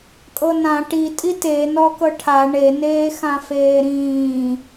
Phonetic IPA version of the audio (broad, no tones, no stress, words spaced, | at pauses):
kʼɤnã ʈi tʼite nɔkɤʈʰa ɳe neːxãfeːɾĩː